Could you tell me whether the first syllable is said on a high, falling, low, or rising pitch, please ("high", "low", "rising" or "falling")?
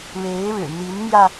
rising